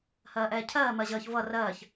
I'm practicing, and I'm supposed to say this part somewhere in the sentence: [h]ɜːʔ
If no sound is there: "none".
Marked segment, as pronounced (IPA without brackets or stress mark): h